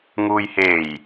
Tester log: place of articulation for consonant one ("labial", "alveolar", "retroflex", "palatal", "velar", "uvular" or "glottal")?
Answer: velar